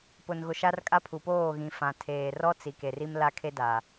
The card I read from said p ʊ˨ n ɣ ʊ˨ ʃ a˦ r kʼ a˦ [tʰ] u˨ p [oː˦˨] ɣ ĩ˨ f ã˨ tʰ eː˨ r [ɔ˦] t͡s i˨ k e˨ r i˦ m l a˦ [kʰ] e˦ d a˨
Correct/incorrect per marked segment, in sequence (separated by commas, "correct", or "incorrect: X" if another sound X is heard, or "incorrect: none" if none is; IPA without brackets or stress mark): incorrect: pʰ, correct, correct, correct